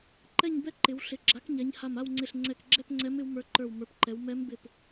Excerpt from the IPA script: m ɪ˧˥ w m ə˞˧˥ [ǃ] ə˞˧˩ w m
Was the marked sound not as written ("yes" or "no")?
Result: no